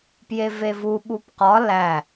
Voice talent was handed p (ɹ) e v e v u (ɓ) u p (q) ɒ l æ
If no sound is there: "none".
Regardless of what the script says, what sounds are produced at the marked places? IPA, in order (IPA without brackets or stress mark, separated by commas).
j, ɓ, q